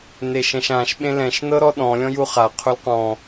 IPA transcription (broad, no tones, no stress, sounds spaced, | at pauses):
n e ʃ ɛ̃ ʃ ã ʃ ɓ ẽ l ɛ̃ ʃ n ɤ ɾ ɔ ɗ ɔ̃ lʲ ɔ̃ j u χ a qʰ u l q ɔ̃